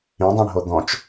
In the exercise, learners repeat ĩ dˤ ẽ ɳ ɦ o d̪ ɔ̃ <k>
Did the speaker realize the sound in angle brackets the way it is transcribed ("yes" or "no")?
no